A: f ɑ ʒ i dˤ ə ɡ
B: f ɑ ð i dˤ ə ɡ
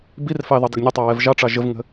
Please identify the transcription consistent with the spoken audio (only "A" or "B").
B